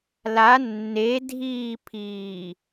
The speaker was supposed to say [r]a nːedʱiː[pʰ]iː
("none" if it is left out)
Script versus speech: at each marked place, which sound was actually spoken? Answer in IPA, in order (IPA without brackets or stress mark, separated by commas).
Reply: l, pʰ